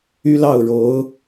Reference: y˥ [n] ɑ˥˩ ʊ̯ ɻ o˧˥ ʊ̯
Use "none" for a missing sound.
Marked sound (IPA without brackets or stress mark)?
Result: l